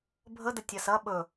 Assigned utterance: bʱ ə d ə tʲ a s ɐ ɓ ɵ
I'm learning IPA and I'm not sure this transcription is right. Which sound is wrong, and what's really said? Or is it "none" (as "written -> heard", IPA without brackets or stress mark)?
none